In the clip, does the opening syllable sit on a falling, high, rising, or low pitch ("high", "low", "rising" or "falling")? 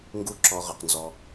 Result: falling